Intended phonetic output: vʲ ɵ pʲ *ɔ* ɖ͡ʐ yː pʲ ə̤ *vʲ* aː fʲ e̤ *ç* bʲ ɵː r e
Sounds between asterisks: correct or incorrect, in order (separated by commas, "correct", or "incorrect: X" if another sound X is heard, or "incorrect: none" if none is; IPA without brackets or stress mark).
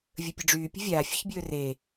incorrect: ə, correct, correct